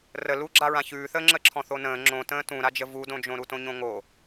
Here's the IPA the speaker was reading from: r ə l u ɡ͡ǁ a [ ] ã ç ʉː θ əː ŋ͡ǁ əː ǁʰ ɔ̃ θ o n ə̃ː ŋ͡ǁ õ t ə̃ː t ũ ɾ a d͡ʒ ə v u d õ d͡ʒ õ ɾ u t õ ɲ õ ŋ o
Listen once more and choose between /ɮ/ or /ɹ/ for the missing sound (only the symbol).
ɹ